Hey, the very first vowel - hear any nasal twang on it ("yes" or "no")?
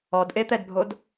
no